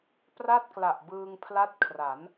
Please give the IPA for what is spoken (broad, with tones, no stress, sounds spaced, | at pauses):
p r a˥˩ t̚ k l a˨˩ ʔ b ɯː˧ ŋ pʰ l a˦˥ t̚ kʰ r a˩˦ n